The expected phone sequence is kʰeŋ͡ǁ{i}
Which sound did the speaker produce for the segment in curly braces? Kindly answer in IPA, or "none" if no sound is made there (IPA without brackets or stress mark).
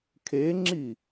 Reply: i